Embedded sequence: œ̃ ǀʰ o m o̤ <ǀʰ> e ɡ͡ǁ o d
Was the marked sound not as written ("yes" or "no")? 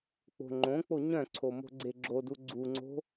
yes